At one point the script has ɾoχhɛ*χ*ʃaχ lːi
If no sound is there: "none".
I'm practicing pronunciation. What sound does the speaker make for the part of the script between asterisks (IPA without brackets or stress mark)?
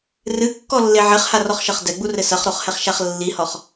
χ